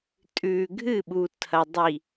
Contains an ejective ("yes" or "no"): yes